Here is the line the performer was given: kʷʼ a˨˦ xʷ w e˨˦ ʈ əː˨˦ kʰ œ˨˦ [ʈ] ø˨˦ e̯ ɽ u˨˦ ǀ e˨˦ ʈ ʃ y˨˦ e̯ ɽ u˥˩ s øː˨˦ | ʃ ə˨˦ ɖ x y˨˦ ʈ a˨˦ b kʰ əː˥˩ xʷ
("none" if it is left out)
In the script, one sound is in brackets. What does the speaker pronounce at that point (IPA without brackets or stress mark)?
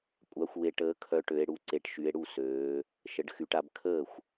ʈ